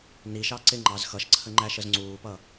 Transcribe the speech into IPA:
n i ʃ ɑ ǀ ɪ ŋ͡ǃ ɑ z x ʌ ʃ ǀʰ ə ŋ͡ǃ æ ʃ ə z ŋ͡ǀ uː p ʌ

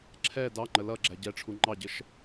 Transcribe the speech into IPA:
ǁʰ ɛ d ɑ ŋ͡ǃ ə l ʌ ɡ͡ǁ æ ɟ ɛ ʈ͡ʂʰ u ŋ͡ǃ ɑ ɟ ə ʃ

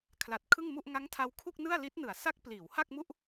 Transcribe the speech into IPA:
kʰ l a˨˩ t̚ kʰ ɯ˥˩ ŋ m u˥˩ ʔ ŋ a˦˥ ŋ tʰ a˧ w kʰ u˥˩ k̚ n ɯ˥˩ a̯ l i˦˥ t̚ n ɯ˩˦ a̯ s a˦˥ k̚ p l iː˩˦ w h a˥˩ k̚ m u˥˩ ʔ

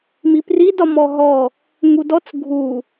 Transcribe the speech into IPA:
m i p r i d ɒ m ɔ ɦ ɔ | ŋ u d ɔ t͡s ɡʱ u

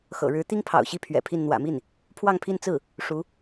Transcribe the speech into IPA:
x ɤ̰˨˩ ɻ ɻ̩˧˥ t̪ i˥ ŋ pʰ ɑ̰˨˩ ʊ̯ ɕ i˥˩ pʰ ɥ ɛ̰˨˩ pʰ i˥˩ n n̪ w ä̰˨˩ m i˥˩ n | pʰ w ɑ˥˧ ŋ pʰ i˥˧ n t͡s ɹ̩˥˩ | ʂ u˧˥

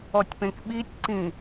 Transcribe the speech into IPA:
ɔ tʲ p ẽ k ɓ i tʲ ǀ ĩ

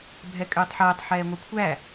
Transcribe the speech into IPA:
bʱ ɛ kʼ øː tˤ ħ ɛː tˤ ħ ɛː ŋʷ ə˞ kʷʰ æ

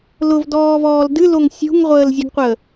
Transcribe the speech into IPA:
l ʊ v d ɔː v ɔː l d ɨ l o ŋ sʲ ṳ ŋ ʁʷ əː l zʲ ɨ ɡ qʷ ə

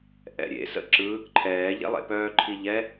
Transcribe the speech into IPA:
ʔ ɛ̰ ɾʲ ḛ s ə̰ ǁ ɯ | ǃʰ ɛː ʎ ɛ̰ lˠ ḛ p œː ǃʰ i ʎ ɛ

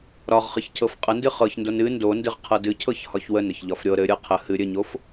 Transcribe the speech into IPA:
ɾ ɒ ʁ χ ɨ ç cʰ ɤ f qʼ ə n d ɨ χ ɤ ç n d o n ɨ n d o n d ɨ ʁ qʰ ɤ d ɨ cʰ ɤ ç h ɒ ç w ə n ə ç ʎ ɒ f ɾʲ ɤ ɾ ɘ ɾʲ ɤ qʰ ə h ɨ ɾʲ ɘ ɲ o f

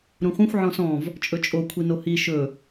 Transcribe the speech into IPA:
ɾ ũ χʷ ĩ xʷ ʕ ɔ̃ s ɔ̃ v | t͡ʃʼ ɵ t͡ʃʼ o kʷʰ i n o h i ʃ ɵ

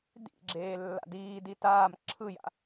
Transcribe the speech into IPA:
d ḭ ɡ͡ǁ eː lː a̰ d iː d i t aː m ǁʰ ɯ j a̰

